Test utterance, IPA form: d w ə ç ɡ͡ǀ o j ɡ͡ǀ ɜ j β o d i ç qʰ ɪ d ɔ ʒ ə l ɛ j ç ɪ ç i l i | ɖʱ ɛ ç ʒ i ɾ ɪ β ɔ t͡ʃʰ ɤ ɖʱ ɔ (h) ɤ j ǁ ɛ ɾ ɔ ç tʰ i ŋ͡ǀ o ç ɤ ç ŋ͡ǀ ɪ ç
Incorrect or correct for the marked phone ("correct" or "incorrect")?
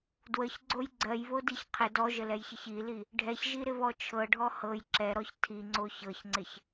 correct